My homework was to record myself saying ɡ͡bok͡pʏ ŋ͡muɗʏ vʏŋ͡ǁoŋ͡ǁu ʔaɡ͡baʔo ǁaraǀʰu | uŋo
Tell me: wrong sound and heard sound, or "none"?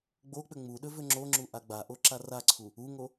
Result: none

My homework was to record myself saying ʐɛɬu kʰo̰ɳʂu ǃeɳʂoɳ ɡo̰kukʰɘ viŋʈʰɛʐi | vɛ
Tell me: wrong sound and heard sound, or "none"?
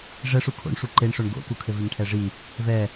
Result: ɬ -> ʂ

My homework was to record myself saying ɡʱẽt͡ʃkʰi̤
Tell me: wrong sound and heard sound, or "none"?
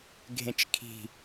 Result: none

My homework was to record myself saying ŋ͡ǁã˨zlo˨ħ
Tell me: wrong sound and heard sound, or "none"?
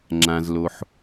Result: none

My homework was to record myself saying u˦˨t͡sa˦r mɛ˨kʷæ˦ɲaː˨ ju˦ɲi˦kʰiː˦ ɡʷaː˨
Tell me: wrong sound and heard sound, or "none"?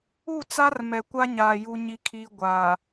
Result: æ˦ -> a˦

